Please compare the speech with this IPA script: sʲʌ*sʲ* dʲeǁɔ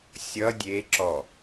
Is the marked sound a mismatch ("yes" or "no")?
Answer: yes